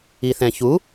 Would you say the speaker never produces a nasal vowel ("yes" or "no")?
no